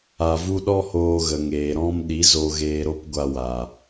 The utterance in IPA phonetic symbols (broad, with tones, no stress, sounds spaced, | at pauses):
a˧ v u˦ ɗ ɔ˦ h oː˧ ɣ ə˨ ŋ eː˨ ɾ ɔ̃˦ m ɗ i˨˦ z o˧ ɣ eː˧ ɾ o˦ p ɡʷ a˧ w a˨